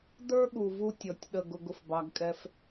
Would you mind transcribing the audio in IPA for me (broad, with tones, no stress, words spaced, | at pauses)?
də˞˦ɠu˨vu˧ tʲɔ˨tʲɗə˦˨ɡ ʊ˧ɡʊ˨fbɑ˧ɡkʼɛ˦f